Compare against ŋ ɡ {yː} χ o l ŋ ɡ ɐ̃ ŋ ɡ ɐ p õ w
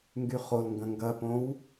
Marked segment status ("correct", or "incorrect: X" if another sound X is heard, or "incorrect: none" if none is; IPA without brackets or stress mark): incorrect: y